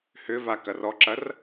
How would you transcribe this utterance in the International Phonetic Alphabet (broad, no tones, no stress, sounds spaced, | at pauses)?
h ʏ v a k ɐ r ɔ ǁ ɐ r